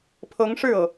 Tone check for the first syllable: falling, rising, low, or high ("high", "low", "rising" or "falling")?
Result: rising